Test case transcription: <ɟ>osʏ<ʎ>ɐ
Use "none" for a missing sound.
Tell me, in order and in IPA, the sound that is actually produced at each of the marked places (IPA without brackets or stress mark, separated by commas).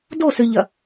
d, ʎ